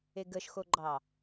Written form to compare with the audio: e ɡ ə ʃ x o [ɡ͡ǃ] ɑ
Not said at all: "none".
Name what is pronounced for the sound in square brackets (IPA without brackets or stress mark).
ɡ͡ǃ